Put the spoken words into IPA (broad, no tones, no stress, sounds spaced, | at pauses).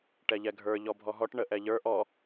ʈ ɛ ʎ ɛ ɡʱ ə˞ ʎ ɔ bʱ ɔ ɦ ɔ ʈ ɳ ə ʔ ɛ ʎ ə˞ ʔ ɔ